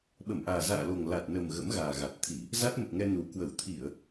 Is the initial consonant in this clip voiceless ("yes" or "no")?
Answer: no